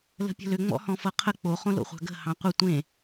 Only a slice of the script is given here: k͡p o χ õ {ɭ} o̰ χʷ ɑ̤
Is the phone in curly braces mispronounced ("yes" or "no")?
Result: yes